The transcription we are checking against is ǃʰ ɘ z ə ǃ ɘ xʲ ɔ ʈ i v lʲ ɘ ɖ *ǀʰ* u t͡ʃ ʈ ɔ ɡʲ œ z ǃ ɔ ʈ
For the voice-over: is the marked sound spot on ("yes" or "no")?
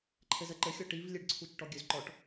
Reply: yes